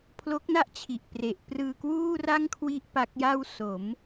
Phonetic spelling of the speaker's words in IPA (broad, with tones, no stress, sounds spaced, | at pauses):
pʰ l o˦˥ k̚ n a˥˩ ʔ t͡ɕʰ i˨˩ ʔ p r e˨˩ ʔ p r ɯː˧ k w uː˥˩ r a˥˩ ŋ kʰ w i˥˩ ʔ p a˦˥ k̚ j a˥˩ w s o˩˦ m